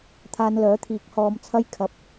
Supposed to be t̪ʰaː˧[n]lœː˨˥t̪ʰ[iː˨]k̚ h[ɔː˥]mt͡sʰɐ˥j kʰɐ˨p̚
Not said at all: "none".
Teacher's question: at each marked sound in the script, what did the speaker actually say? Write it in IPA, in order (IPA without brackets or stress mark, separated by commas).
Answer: n, iː˨˥, ɔː˧